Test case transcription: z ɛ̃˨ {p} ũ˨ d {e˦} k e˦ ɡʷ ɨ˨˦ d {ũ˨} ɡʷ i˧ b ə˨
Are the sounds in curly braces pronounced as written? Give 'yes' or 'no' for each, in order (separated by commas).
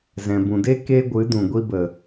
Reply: no, yes, yes